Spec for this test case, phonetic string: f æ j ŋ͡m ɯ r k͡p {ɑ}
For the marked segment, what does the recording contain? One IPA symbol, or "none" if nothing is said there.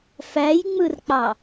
ɑ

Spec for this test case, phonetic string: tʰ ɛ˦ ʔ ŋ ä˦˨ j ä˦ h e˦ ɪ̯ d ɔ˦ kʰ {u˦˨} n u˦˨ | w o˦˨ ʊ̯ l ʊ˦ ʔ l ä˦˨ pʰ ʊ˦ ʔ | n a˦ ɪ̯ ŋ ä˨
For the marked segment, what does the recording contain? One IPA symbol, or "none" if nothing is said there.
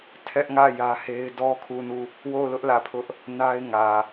u˦˨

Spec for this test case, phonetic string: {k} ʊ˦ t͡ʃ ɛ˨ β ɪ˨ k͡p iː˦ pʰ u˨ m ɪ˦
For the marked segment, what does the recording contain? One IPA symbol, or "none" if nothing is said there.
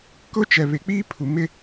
k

